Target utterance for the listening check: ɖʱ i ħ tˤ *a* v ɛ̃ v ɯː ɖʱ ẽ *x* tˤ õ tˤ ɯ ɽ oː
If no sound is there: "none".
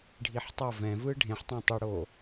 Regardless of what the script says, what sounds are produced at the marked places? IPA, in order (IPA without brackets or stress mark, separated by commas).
ʌ, ħ